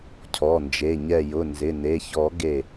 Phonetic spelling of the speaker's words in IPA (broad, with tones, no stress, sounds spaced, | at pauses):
cʰ ɔ˩˧˩ n d͡ʒ e˩˧˩ ɲ ɛ˧˩ j ʊ˩˧˩ n z ɪ˩˧˩ n e˩˧˩ ç ɔ˨˩˦ ɡ e˧˩